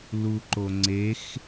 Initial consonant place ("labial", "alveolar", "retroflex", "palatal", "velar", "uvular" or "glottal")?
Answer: alveolar